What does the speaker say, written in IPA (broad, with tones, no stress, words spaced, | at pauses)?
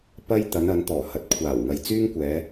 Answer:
pɐ˥j t̪ɐ˨˧nɐ˨˧n t̪ɔː˨˩hɐ˨˥t̚kʷʰaː˨˩w ŋɐ˨jt͡syː˥ŋkʷɛː˨˧